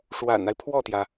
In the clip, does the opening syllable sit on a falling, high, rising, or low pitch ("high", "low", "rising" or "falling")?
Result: low